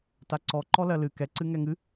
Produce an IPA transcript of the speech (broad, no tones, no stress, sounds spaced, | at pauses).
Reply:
t a ǀ ɔ ǃ ɔ l ɜ l ɨ k ɛ ǀ ɨ ŋ ɛ ŋ ɨ